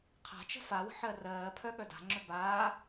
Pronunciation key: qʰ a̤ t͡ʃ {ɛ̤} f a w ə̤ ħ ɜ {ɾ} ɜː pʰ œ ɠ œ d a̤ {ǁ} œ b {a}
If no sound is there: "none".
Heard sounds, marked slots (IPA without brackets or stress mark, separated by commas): ə̤, r, ŋ͡ǁ, aː